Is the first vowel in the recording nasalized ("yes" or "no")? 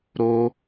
no